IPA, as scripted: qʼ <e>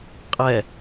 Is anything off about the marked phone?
yes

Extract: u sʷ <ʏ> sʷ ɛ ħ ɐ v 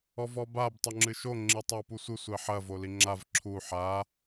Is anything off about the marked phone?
yes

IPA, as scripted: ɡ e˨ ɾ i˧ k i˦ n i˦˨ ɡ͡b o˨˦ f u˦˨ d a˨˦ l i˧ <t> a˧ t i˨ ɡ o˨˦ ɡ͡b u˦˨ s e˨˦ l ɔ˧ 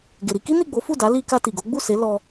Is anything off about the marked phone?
yes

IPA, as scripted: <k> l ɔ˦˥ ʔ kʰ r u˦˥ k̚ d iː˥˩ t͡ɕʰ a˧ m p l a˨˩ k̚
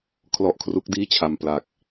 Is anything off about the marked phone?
yes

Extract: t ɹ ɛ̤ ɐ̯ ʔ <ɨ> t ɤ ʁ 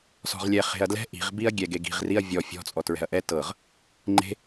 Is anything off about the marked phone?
yes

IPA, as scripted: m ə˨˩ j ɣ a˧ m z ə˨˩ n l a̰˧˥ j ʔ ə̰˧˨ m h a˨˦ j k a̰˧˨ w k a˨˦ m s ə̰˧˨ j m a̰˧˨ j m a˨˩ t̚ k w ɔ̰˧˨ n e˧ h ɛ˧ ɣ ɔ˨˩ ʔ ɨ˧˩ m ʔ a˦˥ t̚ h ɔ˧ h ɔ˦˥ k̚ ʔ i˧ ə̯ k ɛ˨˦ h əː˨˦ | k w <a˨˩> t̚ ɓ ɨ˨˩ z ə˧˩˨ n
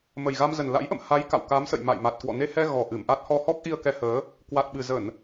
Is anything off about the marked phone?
no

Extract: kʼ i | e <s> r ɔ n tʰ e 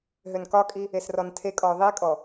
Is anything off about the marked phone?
no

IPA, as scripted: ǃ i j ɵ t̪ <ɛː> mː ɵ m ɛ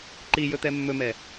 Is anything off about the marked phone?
yes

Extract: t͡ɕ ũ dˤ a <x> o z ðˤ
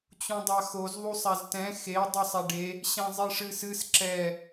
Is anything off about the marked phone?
no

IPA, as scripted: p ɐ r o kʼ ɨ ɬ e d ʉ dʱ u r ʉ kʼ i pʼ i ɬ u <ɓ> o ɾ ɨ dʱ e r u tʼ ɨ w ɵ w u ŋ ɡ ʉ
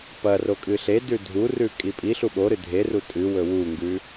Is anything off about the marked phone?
no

